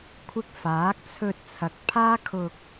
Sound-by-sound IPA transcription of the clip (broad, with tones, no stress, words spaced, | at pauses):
kʷʰɪ˧k̚faː˨˥k̚t͡sʰɵ˧t̚t͡sʰɐ˨˥k̚ pʰaː˥kʰʊ˧k̚